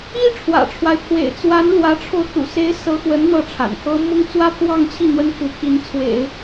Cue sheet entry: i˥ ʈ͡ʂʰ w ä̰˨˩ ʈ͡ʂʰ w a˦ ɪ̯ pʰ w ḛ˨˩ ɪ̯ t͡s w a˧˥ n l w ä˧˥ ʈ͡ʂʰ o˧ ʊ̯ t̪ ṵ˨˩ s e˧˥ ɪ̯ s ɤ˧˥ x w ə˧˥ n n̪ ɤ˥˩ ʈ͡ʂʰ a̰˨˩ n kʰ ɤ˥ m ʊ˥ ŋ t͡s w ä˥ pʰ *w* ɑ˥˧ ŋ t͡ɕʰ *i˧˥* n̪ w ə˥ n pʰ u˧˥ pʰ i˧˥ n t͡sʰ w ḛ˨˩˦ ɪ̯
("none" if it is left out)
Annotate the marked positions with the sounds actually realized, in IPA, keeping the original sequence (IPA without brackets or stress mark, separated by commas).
w, i˥˩